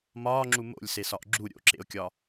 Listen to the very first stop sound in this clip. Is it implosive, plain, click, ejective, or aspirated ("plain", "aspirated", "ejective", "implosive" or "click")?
click